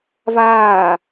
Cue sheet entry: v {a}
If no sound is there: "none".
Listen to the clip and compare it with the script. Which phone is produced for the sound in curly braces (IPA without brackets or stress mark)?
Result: aː